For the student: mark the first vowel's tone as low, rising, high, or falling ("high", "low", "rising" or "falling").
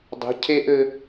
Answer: rising